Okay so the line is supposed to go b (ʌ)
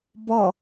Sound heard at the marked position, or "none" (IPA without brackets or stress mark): ʌ